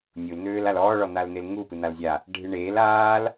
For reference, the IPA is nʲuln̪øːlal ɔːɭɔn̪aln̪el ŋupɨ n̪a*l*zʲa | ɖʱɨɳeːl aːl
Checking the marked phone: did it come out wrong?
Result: no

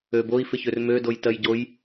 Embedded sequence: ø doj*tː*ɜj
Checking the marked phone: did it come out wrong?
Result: yes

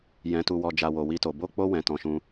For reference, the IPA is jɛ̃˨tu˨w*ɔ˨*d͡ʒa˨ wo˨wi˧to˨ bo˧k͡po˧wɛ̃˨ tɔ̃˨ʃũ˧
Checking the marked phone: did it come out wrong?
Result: no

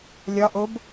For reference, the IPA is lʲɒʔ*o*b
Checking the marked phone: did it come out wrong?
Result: no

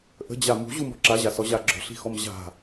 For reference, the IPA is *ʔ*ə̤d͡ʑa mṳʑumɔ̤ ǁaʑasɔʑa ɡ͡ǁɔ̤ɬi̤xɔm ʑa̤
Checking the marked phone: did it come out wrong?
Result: no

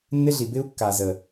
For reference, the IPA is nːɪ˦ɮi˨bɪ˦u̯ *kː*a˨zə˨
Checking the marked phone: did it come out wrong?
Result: no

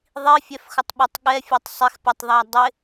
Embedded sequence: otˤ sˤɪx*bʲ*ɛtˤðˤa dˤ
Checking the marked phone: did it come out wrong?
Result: yes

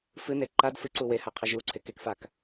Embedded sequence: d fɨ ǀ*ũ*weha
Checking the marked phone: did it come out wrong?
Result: yes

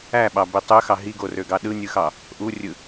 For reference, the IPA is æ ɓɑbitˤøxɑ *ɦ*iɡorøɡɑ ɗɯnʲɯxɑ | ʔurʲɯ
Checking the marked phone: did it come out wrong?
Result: no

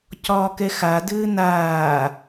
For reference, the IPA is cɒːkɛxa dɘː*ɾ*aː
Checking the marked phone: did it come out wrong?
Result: yes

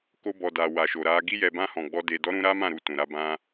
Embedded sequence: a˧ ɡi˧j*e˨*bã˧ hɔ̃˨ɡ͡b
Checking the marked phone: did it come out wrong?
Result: yes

